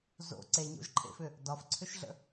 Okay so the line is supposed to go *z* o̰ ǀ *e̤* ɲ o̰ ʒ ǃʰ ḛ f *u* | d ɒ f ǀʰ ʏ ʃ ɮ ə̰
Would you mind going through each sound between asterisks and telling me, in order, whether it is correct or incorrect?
correct, incorrect: e, incorrect: ʏ

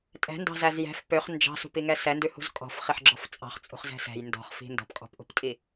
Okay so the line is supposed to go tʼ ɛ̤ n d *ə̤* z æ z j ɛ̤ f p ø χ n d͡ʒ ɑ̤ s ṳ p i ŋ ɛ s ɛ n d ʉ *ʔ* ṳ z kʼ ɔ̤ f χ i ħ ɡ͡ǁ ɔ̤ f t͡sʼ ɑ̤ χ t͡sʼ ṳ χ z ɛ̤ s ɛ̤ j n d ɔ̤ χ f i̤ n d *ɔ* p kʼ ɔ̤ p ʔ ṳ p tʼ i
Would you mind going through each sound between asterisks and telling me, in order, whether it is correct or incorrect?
incorrect: ɑ̤, incorrect: h, incorrect: ɔ̤

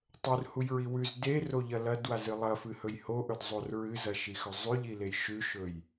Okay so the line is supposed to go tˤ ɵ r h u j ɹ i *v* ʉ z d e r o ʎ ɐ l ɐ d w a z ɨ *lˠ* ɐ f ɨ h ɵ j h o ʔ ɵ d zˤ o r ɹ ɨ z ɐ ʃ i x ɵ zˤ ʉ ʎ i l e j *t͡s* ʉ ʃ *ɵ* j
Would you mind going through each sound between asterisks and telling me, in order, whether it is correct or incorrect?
incorrect: w, correct, incorrect: ʃ, correct

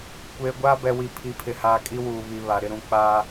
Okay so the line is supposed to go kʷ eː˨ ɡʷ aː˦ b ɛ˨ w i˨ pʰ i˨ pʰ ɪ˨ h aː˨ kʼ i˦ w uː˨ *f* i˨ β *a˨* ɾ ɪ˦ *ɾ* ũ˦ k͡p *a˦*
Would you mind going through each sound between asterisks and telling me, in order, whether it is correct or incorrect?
incorrect: β, correct, correct, incorrect: aː˦

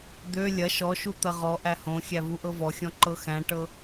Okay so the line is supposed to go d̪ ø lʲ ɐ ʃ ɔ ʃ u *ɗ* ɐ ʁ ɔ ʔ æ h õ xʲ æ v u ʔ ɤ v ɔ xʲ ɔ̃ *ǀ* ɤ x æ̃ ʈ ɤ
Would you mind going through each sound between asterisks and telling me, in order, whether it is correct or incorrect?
incorrect: t̪, incorrect: ǃ

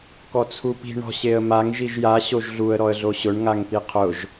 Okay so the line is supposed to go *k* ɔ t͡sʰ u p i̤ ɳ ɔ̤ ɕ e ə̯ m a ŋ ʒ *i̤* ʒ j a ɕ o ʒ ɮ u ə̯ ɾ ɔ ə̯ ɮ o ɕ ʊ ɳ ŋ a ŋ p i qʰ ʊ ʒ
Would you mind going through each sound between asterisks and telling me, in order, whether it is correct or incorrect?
correct, incorrect: i

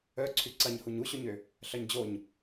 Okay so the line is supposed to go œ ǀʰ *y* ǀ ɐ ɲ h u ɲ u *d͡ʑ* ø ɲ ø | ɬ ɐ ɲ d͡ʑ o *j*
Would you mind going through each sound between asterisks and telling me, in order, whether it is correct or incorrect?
correct, incorrect: ɕ, incorrect: ɲ

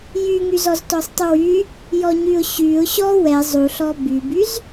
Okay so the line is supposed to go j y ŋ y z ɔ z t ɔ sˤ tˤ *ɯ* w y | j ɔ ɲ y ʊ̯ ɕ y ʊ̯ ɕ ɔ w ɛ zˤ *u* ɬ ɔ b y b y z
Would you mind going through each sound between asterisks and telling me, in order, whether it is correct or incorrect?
incorrect: u, correct

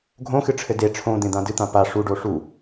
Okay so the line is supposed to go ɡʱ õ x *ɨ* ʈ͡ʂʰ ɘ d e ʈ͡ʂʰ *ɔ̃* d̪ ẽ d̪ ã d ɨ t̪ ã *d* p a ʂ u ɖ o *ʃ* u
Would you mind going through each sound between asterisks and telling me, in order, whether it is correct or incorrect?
correct, incorrect: õ, incorrect: none, incorrect: ʂ

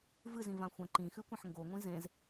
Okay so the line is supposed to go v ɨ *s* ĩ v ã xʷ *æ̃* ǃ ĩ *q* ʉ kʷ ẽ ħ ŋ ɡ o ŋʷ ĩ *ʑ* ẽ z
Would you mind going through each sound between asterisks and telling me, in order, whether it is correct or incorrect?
incorrect: z, incorrect: ɐ̃, incorrect: x, incorrect: z

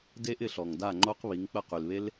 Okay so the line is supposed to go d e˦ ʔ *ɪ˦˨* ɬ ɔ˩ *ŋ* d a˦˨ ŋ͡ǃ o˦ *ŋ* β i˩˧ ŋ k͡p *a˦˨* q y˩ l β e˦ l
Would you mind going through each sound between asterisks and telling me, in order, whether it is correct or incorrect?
correct, correct, incorrect: q, incorrect: ə˦˨

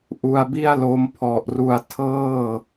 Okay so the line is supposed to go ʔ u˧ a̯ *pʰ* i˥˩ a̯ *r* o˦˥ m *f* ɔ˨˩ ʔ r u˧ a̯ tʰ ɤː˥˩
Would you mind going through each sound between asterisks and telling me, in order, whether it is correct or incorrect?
incorrect: b, incorrect: l, incorrect: pʰ

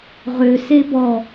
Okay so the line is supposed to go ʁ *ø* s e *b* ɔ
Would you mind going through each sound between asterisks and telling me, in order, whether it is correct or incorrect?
correct, correct

